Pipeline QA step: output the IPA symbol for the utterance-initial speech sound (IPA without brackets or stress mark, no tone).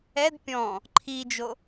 ɛ